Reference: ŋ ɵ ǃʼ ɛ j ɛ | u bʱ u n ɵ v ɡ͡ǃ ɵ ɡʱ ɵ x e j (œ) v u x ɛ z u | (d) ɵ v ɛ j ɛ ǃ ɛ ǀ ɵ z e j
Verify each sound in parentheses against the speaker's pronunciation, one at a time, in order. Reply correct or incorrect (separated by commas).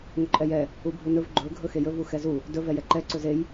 incorrect, correct